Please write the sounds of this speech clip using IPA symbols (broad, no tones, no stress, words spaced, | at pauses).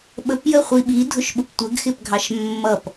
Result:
ɓəpjə χʷiɓidʱʊʃɓʊp tʷəɡxɪpɡʱɑʃ mːʌp